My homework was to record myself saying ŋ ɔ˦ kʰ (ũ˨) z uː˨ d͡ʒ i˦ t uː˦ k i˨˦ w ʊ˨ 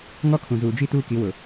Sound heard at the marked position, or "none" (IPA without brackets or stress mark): ũ˨